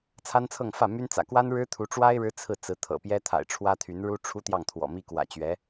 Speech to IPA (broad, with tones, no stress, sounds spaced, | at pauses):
t͡sʰ a˥ n t͡sʰ ɤ˥˧ ŋ f ä˥˩ m y˥ n t͡s ä̰˨˩ k w a˥ n ɻ ɻ̩˥ t̪ʰ u˧˥ ʈ͡ʂ w a˥ ɪ̯ ɻ ɻ̩˥ t͡sʰ ɹ̩˥˩ t͡s ɹ̩˧˥ t̪ʰ ɤ̰˨˩ p j ɛ˥ t̪ʰ a̰˨˩ ɪ̯ ʈ͡ʂʰ w ä˥ t̪ʰ y˧˥ n ɻ u˥ ʈ͡ʂʰ u˥ t̪ j ɑ˥˩ ŋ t̪ʰ w ɔ̰˨˩ m i˥ k w ä̰˨˩ t͡ɕ ɥ ɛ˧˥